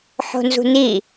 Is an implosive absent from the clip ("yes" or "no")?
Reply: yes